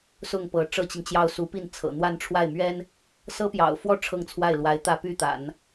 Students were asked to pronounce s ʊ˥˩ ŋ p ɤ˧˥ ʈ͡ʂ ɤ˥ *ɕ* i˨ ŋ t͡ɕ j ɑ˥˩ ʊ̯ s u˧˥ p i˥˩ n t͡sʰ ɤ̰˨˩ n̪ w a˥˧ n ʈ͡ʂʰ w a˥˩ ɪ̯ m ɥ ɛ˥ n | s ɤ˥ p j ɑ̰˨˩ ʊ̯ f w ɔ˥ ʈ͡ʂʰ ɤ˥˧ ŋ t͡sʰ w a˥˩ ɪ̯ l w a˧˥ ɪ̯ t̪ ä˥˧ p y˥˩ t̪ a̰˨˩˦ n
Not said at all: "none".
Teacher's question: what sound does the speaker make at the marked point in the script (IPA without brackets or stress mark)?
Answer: t͡ɕ